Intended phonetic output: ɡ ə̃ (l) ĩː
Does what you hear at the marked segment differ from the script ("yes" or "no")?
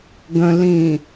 no